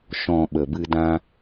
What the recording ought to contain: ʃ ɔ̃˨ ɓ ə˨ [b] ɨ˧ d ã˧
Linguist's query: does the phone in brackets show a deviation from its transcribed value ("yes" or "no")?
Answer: no